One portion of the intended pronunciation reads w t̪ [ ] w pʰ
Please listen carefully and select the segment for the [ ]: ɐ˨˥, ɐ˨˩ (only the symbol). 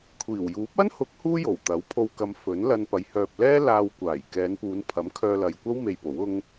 ɐ˨˥